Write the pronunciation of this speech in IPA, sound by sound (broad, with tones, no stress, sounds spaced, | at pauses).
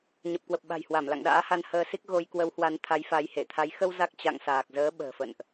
ɲ ə˨˩ p̚ k w ə˨˩ p̚ ɓ a̤˨˩ j h w a˧˩ m l a̰˧˨ ŋ ɗ a̰ː˧˥ h a˧ n h əː˧ s i˦˥ k̚ ɣ o˧ j k w ə˨˦ w h w a˨˦ n t̪ʰ a˨˦ j f a˨˦ j h e˧˩ t̪ʰ a˨˦ j x ə˧ w z a˦˥ k̚ t͡ɕ a̰˧˨ ŋ s aː˨˩ k̚ z əː˨˦ ɓ ə̤ː˨˩ f ə̰˧˨ n ʔ